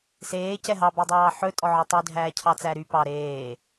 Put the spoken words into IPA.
seː cɛɦɑbœdˤɑː ħɵtʼɔ ʕɔtˤy dʱæːcʰɑt͡sæɾy pɑ ɾeː

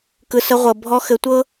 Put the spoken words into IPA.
kɯ˨sə˧ʁʷɤ˨ bʱɔ˧xɘ˨˦tʷɤ˦

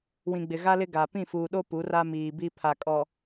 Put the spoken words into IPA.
wĩ˨ɡ͡bɪ˨ɣa˦lɪ˦ ɡa˨ pĩ˦˨fuː˨ɗo˦ pu˨˦ra˦miː˨bi˦ pʰa˨kʼɔ˨

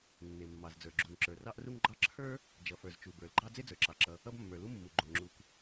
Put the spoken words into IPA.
nːe˩mːɑ˩zd͡zə˞˩ ɡ͡ǁu˩ŋǁə˞˩rɑ˥ʔru˥ŋ ɡ͡ǃɑ˥ ǁʰə˞˥ | d͡ʒʌ˩fə˞˩z t͡ʃu˩bə˞˩lɡ͡ǃɑ˥ d͡ze˥d͡zə˞˩ǁɑ˩ǁʌ˩ | ʌ˥bmːə˞˩ lu˥mːu˩ɡ͡ǃo˩ ŋ͡ǁu˩k

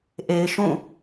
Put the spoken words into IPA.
ʔe˨ɪ̯ʃũ˦˨

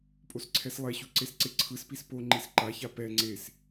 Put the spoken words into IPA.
pʼosǀʰɛslˠɛɕu ǀesǀeǀʰɯspis po ŋ͡ǃisǃaça pɛ ŋ͡ǀes

